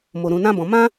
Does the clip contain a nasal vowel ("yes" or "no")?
yes